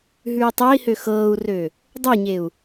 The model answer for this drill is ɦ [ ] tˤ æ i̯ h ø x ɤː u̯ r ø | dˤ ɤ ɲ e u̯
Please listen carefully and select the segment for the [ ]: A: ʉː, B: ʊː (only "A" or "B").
A